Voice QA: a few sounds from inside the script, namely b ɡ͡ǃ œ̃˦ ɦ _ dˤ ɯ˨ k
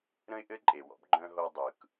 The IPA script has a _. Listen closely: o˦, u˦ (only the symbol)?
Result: o˦